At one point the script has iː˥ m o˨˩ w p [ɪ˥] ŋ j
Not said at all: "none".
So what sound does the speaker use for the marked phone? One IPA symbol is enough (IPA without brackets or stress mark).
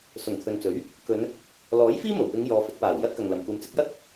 ɪ˨˧